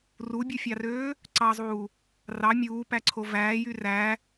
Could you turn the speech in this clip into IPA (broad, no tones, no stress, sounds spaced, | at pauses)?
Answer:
r u bʲ u fʲ ɑ r øː | ǀ ɑ zˤ uː | r ɑ mʲ uː p æ ǀʰ o v æː j y r æ